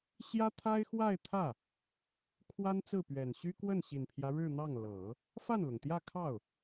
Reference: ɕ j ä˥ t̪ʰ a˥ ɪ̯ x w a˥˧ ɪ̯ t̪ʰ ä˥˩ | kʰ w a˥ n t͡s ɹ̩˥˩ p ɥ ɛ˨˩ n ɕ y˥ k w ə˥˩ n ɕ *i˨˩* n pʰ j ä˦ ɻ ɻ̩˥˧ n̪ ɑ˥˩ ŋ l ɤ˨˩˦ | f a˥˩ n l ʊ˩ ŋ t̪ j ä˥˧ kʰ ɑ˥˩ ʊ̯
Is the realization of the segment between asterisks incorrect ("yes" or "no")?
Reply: no